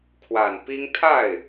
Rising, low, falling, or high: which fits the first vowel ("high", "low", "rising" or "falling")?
low